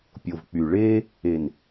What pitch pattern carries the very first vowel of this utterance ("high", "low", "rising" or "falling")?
low